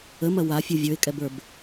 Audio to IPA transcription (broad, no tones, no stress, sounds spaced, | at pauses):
ə m ɐ w a fʲ u vʲ ə˞ ɪ̯ kʼ ɛ b ə˞ b